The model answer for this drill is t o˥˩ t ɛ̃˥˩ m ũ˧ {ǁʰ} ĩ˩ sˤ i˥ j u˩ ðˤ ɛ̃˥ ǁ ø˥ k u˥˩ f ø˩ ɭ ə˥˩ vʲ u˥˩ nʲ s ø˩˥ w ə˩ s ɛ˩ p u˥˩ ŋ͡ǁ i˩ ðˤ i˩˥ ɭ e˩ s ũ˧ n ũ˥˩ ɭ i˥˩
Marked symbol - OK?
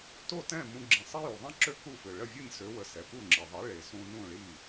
no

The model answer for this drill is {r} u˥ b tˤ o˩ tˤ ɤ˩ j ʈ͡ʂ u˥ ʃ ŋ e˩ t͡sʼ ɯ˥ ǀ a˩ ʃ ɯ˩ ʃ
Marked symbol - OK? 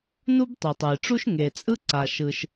no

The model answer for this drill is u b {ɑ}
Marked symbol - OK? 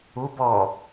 no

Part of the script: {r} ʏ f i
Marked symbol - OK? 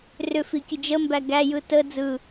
yes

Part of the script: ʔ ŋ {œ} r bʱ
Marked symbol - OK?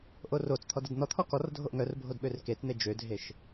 yes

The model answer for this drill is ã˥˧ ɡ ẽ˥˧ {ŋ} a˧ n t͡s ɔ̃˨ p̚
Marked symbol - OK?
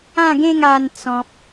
yes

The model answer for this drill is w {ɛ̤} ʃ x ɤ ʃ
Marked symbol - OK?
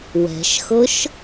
yes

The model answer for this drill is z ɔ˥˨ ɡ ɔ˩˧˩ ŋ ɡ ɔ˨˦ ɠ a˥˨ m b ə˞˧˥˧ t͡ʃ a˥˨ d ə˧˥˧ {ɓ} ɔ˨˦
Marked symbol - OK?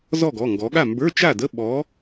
yes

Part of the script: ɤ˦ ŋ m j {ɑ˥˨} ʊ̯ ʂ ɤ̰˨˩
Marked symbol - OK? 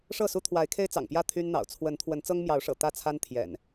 no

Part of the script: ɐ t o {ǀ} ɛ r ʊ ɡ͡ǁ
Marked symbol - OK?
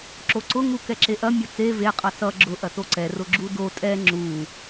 yes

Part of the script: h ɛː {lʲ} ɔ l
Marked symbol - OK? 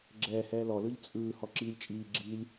no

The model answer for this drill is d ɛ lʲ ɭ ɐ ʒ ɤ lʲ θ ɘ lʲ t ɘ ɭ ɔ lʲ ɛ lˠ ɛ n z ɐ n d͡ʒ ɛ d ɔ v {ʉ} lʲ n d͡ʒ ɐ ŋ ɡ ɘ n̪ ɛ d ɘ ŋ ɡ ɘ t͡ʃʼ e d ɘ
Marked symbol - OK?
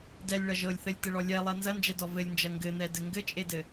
no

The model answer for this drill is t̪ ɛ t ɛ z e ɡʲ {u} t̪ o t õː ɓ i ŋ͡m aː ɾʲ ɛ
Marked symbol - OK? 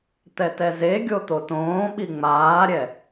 no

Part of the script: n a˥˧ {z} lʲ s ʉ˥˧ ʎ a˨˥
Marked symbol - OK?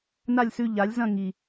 no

